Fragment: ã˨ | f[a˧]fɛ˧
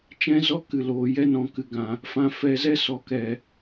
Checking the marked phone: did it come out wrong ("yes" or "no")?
yes